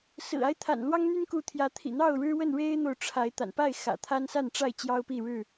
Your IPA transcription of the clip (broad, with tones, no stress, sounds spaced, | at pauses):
s ɹ̩˨˩ a˦ ɪ̯ t̪ʰ a̰˨˩ n l w ɑ˦ ŋ n̪ y˦ n k u˨˦ t̪ʰ j ä˨˦ t̪ʰ ḭ˨˩ n̪ ɑ˥˨ ʊ̯ ɻ ɻ̩˦ w ə˥˨ n ɻ e˦ ɪ̯ n̪ o˨ ʊ̯ ʈ͡ʂʰ a˨˦ ɪ̯ t̪ a̰˨˩ n p a˥˨ ɪ̯ x ä̰˨˩ t̪ʰ a˦ n s a˥˨ n ʈ͡ʂ a˥˨ ɪ̯ t͡ɕ j ɑ˦ ʊ̯ p i˥˨ ɻ ɻ̩˥˨